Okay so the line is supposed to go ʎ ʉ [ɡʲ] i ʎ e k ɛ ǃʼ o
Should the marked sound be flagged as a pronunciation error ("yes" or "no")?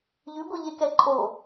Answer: yes